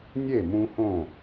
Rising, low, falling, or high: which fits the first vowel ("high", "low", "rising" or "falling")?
falling